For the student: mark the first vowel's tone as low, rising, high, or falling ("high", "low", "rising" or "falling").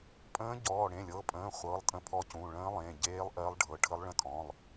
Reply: rising